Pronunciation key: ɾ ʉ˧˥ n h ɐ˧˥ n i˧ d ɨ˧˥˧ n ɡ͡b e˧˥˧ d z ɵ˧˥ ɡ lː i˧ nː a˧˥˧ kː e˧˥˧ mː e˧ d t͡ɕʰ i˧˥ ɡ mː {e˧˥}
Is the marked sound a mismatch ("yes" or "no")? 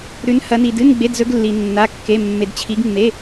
yes